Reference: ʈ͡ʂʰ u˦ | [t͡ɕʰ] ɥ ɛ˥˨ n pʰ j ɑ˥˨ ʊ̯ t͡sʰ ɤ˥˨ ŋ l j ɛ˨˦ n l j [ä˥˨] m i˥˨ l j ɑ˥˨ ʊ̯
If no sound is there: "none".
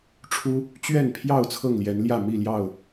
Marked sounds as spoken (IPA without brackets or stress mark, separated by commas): t͡ɕ, ä˥˨